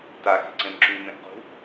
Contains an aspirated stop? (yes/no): no